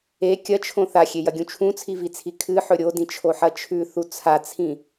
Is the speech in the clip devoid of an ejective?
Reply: yes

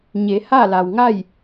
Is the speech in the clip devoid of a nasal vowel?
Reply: yes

